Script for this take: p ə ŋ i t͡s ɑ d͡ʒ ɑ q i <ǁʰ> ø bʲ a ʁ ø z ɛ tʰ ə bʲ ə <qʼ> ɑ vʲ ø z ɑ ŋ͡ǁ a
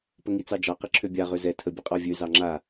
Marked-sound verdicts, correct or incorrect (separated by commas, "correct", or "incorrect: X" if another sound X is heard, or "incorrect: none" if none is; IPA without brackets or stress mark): correct, correct